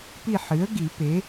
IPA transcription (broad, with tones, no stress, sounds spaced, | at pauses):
p i˦˨ ħ ɨ˩˥ ə̯ ɡ i˨˩˦ p e˩˥